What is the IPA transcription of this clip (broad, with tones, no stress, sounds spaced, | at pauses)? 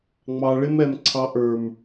ŋ͡m ɑ˧ ɭ ɪ˦ m ɛ˧ m ǀʰ ɑ˧ ʔ ə˞˨ m